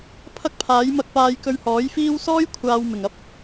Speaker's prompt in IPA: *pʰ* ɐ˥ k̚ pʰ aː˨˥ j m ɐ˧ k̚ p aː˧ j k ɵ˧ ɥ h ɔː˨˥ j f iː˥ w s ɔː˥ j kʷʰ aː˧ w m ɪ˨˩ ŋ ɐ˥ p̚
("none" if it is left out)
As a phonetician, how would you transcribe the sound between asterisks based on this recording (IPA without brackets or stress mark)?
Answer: pʰ